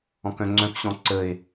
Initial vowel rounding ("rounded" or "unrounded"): rounded